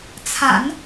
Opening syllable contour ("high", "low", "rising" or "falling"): low